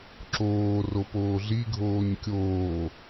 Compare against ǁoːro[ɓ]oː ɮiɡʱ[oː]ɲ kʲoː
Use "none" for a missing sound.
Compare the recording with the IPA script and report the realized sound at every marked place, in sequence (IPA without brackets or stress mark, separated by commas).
p, oː